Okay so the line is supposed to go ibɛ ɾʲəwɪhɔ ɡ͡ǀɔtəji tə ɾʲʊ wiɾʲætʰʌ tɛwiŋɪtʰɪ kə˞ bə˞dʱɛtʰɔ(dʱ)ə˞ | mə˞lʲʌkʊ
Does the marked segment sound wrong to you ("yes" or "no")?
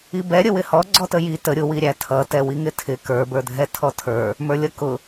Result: yes